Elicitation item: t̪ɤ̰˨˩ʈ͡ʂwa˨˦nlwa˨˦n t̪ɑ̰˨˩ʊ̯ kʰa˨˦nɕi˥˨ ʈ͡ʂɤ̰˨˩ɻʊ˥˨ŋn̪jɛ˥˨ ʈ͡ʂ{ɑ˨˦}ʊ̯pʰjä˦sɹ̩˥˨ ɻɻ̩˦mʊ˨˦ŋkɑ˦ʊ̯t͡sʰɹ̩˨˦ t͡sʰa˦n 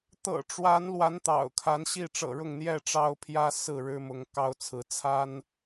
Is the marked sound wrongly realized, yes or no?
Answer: yes